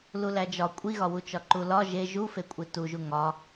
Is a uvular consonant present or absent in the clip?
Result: absent